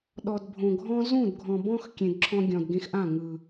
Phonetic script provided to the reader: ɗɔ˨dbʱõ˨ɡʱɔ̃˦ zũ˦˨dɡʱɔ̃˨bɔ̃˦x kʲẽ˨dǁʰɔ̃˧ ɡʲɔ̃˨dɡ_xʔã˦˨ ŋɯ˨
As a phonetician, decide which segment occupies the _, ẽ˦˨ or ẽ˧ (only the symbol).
ẽ˧